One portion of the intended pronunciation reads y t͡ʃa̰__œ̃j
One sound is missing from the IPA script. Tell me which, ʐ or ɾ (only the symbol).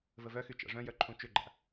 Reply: ʐ